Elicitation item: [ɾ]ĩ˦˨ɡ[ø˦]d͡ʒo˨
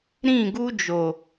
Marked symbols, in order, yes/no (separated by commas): yes, no